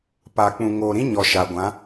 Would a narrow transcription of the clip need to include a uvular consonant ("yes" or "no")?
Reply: no